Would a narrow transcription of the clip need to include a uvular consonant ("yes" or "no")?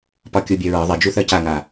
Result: no